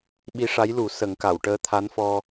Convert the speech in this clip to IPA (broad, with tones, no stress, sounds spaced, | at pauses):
ɓ i˧˥ ʂ a˧˥ j l u˨˩˦ s ə˨˩˦ ŋ k a˨˩˨ w ʈ əː˧˥ t̪ʰ a˧˥ n f ɔ˧